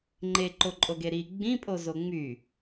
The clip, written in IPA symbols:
ŋ͡ǃeǃoǃʼoɡe ɾi ɡ͡bĩpʼo zoŋ͡my

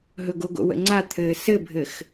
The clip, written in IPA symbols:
ɦɵɡoɡo̰ wə̰ŋ͡ǀa t̪ʰɘːsɘbʱɘx

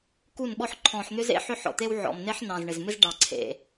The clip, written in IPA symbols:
ku˦˨nɓɔ˦ħ ǃʰɔ̃˨ħn̪ʏ˦zḛ˦ ħʏ˦ħɔ̰˨t̪e˦wʕɔ̰˨m ne˦ħnɑ̃˨zɳɪ˨zmɪ˦z ɖɑ˨ǀʰḛ˨

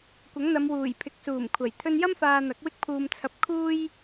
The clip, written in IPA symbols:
kʷɐ˨˥ŋn̪ɐ˨˧mwuː˨˩j pʰɪ˨˥k̚suː˨˩mkʷʰɐ˨˩j t̪ʰɵ˧njɐ˥mfaː˨ n̪ɐ˨˥k̚wɪ˥k̚pʰuː˧m t͡sʰɐ˧p̚kʰuː˥j

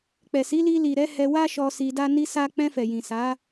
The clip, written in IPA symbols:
k͡pɛ˨si˨˦li˧ li˨ɾɛ˨˦ hɛ˧ wa˦ʃɔ˧ si˧da˦ ni˦sa˦ k͡pɛ̃˧fɛ˨jĩ˨ sa˨˦

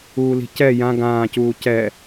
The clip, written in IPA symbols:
uːli̤cɛ jã ɡãːcuː cɛ

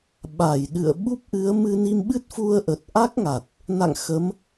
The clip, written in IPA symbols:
ɓa˧˩jɗɨ̰˧˨ə̯ ɓu˦˥p̚ʔɨ˨˦ə̯ mɨ˧ni˧mɓɨ˦˥t̚ fu˧ə̯ʔə˨˩t̚ ʔa˦˥k̚ŋa˨˩t̚ | na̰˧˨ŋ xə˨˦m

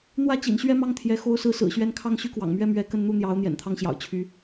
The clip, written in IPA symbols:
n̪wä˥˩t͡ɕḭ˨˩nɕɥɛ˥˧mɑ˥˩ŋ t̪ʰjɛ˧˥ xo˧˥ʊ̯sɹ̩˧˥sɹ̩˨˩ɕɥɛ˧˥n kʰɑ˥˩ŋɕy˥kwɑ̰˨˩ŋmɥɛ˥ mɥɛ˧˥kə˥˧n n̪u˥˩n̪jɑ˧˥ʊ̯ n̪jɛ̰˨˩nt̪ʰɑ˥ŋɕjɑ̰˨˩ʊ̯ t͡ɕʰy˧˥

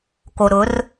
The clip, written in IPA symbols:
ko˨ ɾʊ˨˦r

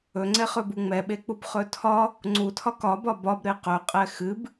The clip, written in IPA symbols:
ɵŋ͡ǀɛχɵbu ŋ͡mɛɓek͡pubχɵ tʰɒ | ŋ͡ǀutʰɒk ɒbɒ bɒbɾe qɵqʼɛ xɨb

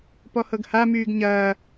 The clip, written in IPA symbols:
pɔhɤɡhamyːɡ ɲɐː

